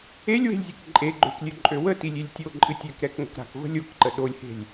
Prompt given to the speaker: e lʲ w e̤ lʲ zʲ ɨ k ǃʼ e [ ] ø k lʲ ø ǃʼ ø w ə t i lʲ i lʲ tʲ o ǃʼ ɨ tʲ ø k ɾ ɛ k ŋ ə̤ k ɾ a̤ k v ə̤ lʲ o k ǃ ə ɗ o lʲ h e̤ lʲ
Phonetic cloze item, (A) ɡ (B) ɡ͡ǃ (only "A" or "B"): B